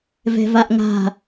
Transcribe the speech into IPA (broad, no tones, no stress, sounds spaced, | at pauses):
v ɛ̤ v a ʔ ŋ a̤